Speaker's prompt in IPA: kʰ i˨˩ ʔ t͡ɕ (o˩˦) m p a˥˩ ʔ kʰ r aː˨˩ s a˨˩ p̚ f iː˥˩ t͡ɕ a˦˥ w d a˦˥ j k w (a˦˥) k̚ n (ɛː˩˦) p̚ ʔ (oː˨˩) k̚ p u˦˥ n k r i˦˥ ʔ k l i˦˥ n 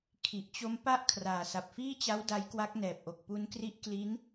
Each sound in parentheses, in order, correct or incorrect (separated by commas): incorrect, correct, incorrect, incorrect